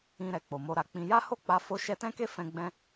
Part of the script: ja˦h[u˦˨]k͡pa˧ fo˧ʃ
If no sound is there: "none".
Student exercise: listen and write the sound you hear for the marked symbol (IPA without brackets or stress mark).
o˦˨